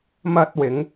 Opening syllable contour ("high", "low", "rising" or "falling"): high